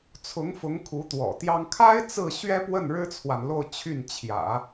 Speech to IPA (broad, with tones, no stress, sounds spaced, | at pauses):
t͡sʰ ʊ˧˥ ŋ f ʊ˧˥ ŋ kʰ u˧˥ t̪ w ɔ̰˨˩ t̪ j ɑ˥ ŋ kʰ a˥ ɪ̯ t͡s ɹ̩˥˩ ɕ ɥ ɛ˥ p w ə˥˩ n ɻ ɻ̩˥ t͡sʰ w a˨ n l o˥˧ ʊ̯ t͡ɕʰ y˥˩ n t͡ɕʰ j ä̰˨˩˦